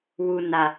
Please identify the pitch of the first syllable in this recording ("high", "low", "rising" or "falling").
low